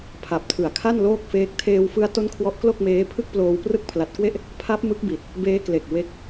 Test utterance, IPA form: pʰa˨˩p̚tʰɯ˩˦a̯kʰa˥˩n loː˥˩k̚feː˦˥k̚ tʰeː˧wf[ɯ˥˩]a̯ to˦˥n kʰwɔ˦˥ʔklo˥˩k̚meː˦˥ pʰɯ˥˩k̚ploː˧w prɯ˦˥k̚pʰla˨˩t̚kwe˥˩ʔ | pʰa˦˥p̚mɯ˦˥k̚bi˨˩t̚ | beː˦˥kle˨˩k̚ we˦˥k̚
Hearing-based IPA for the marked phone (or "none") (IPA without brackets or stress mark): ɯ˦˥